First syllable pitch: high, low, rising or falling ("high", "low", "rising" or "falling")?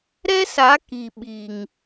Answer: high